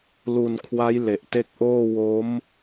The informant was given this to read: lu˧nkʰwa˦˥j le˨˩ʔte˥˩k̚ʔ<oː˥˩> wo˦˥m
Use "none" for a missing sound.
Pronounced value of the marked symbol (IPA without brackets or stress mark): oː˥˩